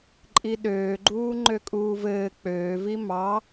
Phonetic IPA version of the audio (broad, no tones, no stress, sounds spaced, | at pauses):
ǃʼ i ɗ øː ɡ͡ǃ uː ŋ͡ǃ ø kʼ uː v ɘː k͡p øː v i m ɑ